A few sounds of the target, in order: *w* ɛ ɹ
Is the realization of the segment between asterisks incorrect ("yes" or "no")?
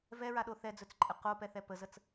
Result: yes